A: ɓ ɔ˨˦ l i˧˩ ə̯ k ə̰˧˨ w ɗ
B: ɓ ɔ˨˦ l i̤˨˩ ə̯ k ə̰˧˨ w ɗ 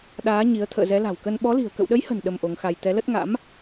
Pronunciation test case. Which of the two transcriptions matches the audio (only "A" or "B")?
B